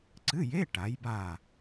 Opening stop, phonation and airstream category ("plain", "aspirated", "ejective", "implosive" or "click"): click